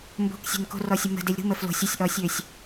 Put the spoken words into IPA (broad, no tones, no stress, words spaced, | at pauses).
mbo̤ksʲe̤n ko̤rɔsʲə mə̤delʲ ɾṳmə flo̤sʲ usʲʔɔsʲøsʲ